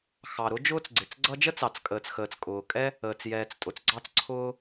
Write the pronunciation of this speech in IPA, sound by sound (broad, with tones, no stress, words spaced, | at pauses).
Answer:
xɑ˩ɾʊ˥ d͡ʒʊː˥t͡sɡ͡ǀɪ˩t͡sɡ͡ǀʌ˥ d͡ʒə˥t͡sɑ˩t͡skʼəː˩t͡sxəː˩t͡s kʼʊː˩kʼɛ˥ | əː˩t͡sjɛː˩t͡s tʼʊ˩t͡sɡ͡ǀɑ˥t͡sǀʰʊː˥